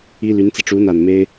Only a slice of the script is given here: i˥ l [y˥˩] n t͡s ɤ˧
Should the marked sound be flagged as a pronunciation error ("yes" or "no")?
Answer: yes